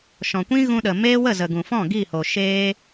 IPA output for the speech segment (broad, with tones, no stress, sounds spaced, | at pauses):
ʃ ɔ̃˨ kʷ ĩ˦ ɣ ũ˧ ɗ ə˨ m eː˦ w ə˦˨ z ə˨ ɡ ũ˨ f ɔ̃˦˨ ɡ i˦˨ h o˨ ʃ eː˦